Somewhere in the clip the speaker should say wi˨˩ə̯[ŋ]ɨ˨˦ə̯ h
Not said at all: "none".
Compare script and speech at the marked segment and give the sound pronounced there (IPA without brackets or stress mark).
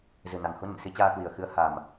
x